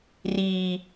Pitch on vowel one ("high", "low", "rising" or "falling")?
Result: low